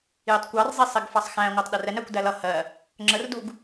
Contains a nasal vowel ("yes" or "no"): yes